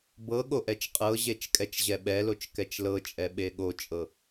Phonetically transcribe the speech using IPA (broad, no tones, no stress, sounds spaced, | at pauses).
b ɤ ɠ o ʔ ɛ t͡ʃ qʼ ɤ ʑ e t͡ʃ kʼ ɛ t͡ʃ ʑ ɛ ɓ ɛ l o t͡ʃ k ɛ t͡ʃ l ɤ t͡ʃʼ ɛ ɓ e ɠ o t͡ʃʼ ɤ